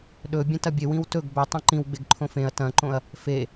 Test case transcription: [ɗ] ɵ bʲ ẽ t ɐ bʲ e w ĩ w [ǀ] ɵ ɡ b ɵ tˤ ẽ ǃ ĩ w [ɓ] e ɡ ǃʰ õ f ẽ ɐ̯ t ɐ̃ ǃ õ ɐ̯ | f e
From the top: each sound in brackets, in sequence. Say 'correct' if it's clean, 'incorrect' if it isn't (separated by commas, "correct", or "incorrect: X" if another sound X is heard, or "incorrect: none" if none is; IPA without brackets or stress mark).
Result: correct, incorrect: t, incorrect: ɡ͡b